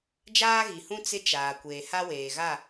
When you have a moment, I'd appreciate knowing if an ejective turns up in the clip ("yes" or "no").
no